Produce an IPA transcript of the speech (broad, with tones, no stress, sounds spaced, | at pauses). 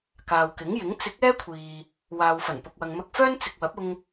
k aː˨ w k ɪ˨˥ ŋ j ɪ˨˥ ŋ t͡s ɪ˨˥ k̚ ɛː˥ kʷʰ iː˨ | w aː˨ w f ɐ˨˩ n p ʊ˨ k̚ w ɐ˨ ŋ m ɐ˧ k̚ f œː˥ n t͡s ɪ˨ k̚ w ɐ˨˥ p̚ ʊ˧ ŋ